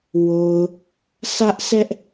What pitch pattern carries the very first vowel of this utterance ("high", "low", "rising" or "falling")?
low